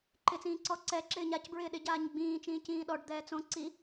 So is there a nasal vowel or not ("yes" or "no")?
yes